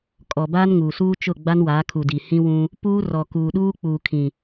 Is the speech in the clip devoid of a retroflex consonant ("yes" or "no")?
yes